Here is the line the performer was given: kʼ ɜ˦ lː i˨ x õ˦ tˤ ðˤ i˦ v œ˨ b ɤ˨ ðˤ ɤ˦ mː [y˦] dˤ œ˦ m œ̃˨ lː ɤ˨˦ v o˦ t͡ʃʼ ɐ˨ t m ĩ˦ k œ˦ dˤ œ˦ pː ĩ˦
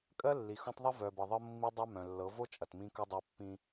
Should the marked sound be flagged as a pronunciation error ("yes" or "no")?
yes